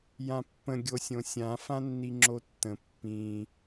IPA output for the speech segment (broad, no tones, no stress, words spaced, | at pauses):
jãpːə̃ ɡʲosʲõsʲã fãnːiŋ͡ǁotːə̃ pːĩ